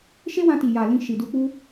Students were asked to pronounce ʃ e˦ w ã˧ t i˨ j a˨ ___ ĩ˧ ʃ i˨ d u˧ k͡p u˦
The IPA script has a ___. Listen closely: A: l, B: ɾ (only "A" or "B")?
A